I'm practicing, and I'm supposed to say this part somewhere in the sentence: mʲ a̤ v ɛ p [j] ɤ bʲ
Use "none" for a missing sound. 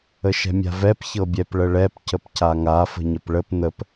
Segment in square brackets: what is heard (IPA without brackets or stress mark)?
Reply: ç